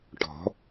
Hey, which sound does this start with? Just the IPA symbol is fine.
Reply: ʈ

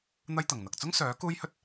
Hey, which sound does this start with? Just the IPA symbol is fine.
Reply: n̪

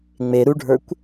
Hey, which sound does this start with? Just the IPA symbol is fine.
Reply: ŋ͡m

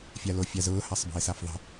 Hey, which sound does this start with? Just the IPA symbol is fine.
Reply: fʲ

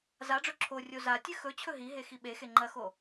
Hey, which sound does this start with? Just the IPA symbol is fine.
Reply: z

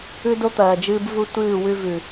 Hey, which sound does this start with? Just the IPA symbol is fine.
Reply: ʉ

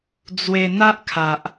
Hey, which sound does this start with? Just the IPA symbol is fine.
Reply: d͡z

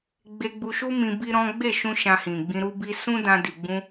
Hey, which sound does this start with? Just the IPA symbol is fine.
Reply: ɡ͡b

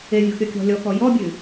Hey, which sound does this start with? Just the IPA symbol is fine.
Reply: e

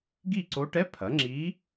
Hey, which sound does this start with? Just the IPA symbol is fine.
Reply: ɡ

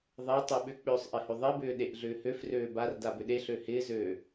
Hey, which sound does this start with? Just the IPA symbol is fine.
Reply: ðˤ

